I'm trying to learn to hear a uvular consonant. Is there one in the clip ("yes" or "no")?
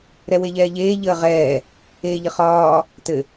yes